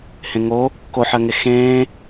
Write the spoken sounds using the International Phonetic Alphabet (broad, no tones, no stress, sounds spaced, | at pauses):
h ẽ ŋ o | k o ħ ɜ ŋ e x ẽː